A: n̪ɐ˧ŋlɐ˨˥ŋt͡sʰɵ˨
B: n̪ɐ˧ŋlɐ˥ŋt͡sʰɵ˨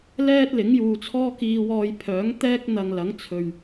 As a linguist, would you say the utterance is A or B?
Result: A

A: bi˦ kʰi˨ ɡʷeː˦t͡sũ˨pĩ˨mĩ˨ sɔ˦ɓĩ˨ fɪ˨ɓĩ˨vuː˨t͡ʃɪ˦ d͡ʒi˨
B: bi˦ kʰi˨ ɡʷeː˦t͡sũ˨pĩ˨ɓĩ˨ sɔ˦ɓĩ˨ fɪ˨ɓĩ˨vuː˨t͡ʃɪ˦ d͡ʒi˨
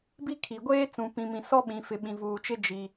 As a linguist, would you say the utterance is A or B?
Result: A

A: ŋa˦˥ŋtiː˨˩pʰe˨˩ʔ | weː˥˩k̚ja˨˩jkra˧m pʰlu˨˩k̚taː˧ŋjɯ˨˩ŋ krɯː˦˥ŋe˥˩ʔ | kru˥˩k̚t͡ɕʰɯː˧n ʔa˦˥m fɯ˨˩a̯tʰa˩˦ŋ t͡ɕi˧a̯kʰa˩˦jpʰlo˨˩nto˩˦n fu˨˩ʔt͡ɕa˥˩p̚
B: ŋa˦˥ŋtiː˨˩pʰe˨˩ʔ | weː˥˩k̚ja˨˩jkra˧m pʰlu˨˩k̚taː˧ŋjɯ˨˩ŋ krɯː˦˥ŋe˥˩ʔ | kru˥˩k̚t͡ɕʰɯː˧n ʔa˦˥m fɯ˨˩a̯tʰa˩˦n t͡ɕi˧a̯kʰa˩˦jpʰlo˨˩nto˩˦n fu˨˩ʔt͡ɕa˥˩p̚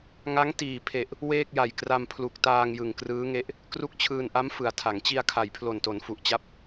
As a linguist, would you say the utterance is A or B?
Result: A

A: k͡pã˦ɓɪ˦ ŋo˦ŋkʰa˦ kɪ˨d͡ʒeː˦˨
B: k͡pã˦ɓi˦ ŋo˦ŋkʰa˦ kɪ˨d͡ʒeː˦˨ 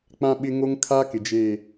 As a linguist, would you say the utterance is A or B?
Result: A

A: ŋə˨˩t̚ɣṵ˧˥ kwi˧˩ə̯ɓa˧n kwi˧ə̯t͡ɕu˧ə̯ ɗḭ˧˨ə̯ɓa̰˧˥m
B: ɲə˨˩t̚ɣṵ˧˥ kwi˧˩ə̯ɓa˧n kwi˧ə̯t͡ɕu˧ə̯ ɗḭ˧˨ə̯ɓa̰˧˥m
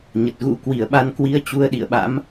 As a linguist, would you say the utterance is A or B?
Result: B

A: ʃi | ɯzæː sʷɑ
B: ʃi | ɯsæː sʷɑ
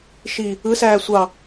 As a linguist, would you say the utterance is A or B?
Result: B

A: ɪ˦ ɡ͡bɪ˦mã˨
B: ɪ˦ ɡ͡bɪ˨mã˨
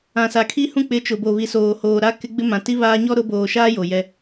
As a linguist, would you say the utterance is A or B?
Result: A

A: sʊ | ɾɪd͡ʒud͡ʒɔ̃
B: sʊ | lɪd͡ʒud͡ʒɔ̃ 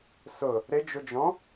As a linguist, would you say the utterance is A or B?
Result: A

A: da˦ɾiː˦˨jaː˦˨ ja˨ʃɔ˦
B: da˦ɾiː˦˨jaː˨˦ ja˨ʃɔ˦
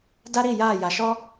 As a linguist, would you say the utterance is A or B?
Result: A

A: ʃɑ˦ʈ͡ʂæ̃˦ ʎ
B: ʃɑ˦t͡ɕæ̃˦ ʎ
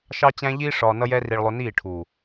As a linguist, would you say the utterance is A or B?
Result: B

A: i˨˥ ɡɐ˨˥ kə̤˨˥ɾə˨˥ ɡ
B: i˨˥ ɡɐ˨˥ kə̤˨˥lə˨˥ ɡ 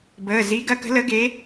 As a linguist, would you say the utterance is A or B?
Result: B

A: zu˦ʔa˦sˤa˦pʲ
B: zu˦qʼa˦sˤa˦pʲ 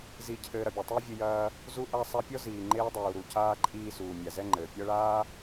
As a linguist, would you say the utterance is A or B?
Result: A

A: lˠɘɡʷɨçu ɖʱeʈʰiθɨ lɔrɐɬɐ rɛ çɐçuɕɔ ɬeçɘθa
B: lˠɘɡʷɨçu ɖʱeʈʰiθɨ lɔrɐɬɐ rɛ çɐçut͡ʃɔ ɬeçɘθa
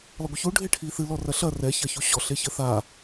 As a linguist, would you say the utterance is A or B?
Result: A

